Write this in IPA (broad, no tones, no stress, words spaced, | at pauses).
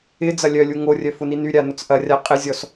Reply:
ɪ d͡zɐlʲœlʲu ŋorʲœ fʊninyɾʲa nʊt͡sʔɐrʲa qʼɪzʲɔs